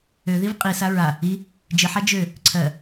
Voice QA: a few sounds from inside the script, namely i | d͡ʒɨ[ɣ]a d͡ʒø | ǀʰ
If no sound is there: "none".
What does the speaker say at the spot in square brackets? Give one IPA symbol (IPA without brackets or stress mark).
ħ